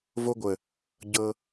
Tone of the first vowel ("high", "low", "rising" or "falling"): high